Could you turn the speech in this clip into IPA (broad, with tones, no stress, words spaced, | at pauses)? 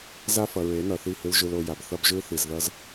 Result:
za˦ fʌ˨ɹe˨˦nʌ˨ θi˦˨hɯ˦l ʒɯ˦lo˦ ja˨bθʌ˦bʒɯ˦ θi˨zðʌ˦z